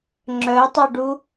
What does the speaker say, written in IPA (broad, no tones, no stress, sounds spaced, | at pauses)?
ŋ͡ǁ œ tˤ u ɖ u